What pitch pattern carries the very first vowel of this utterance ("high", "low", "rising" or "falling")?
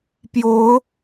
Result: rising